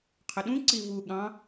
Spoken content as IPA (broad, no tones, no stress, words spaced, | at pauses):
qʰəɗũǀi vu ɠɑ̃